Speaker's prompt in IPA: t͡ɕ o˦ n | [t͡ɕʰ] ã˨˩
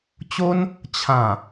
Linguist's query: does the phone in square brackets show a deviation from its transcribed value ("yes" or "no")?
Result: no